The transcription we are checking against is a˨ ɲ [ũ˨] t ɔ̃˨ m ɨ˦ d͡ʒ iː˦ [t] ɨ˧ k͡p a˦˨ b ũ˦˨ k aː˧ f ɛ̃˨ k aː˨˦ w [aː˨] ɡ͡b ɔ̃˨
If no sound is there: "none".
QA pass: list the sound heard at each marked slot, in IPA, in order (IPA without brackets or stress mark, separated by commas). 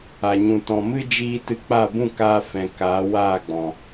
ũ˨, t, aː˦˨